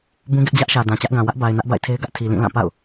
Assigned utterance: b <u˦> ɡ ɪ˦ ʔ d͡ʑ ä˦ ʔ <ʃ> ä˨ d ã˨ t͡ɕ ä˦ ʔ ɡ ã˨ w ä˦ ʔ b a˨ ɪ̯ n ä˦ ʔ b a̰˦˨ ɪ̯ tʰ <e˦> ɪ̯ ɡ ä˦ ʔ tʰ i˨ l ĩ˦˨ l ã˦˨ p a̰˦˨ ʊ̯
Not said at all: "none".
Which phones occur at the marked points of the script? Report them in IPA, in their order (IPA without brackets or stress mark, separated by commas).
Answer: ũ˦, ʃ, e˦